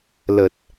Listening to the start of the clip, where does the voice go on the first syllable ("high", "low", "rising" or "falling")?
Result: low